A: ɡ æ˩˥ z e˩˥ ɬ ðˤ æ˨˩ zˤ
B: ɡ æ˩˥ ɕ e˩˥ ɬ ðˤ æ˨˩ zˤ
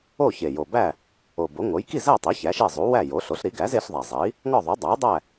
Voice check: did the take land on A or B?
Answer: A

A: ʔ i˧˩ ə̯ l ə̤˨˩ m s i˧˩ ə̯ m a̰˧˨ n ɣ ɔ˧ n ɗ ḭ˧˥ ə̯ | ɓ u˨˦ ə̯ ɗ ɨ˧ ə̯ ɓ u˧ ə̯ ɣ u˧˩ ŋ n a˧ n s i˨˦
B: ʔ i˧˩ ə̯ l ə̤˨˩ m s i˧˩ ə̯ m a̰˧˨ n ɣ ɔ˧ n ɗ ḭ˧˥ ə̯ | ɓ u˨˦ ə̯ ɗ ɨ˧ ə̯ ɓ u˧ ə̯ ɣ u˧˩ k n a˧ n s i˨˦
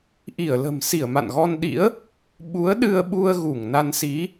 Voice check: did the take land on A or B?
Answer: A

